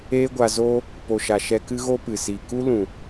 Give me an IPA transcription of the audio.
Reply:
eː˦ ɡʷ a˧ z oː˦ | p o˨ ʃ a˨ ʃ ɛ˧ k ɨ˦ ɣ o˦ p ɨ˨ s i˨ k u˦ l ũ˨

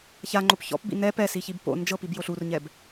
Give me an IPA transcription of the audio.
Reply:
ç a ŋ͡ǃ o p ç ɔ̰ p b ḭ n ɛ p ɛ s i ç i b p o̰ n d͡ʒ ɤ p i b j o ɬ u r ɲ ɛ b

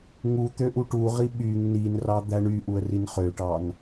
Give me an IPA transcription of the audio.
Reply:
ŋ u t̪ ø ʔ u ʈ u ʁ i ɓ y ŋ n i n r ɑ d̪ æ ɳ y ʔ u ə̯ r i n χ ø ʈ ɑ n

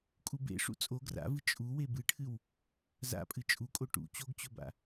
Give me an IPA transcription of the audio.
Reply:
kʼ u b ḛ ʂ ṵ t͡sʼ o ɡ r a̰ v ɨ t͡ʃʼ u w e b ɨ ʈʰ ɨ w | z a̰ pʼ ɨ t͡ʃʼ u kʼ o ʈ ṵ t͡ɕ o ɡ t͡ɕ ɵ b a̰

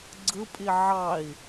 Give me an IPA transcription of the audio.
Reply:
ɡ͡ǀ ɯ pʼ i ʕ ɑ i̯

